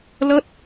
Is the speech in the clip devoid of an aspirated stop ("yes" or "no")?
yes